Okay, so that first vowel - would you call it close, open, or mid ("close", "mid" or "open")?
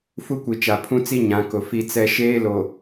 close